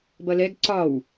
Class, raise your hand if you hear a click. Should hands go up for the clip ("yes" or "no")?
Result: yes